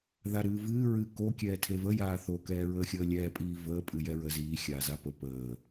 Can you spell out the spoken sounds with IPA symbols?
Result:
ðaɾɨːvɨː ɹɨ ko kʲɛːtʰevəjaː θokɛːɹəːxʲəː lʲɛːpʼiː vəː pʼɨjɛɹə ziː xʲaːzapə pəː

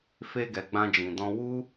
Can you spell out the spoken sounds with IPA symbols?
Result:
fe˧ɡɛ˨ ɡ͡bã˧d͡ʒĩ˨dɔ̃˧ wu˦

